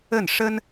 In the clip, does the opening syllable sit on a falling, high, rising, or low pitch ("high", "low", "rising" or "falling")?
falling